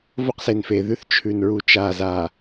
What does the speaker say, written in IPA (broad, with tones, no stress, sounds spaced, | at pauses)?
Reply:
v o˦ q s e˨ n f e˨ ð ʉ˦ θ t͡ʃʰ ʉ˨ n ɹ u˨ t͡ʃ a˨ z a˨